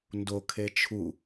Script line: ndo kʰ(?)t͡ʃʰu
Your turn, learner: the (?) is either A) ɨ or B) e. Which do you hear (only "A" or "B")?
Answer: B